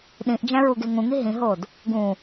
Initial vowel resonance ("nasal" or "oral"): nasal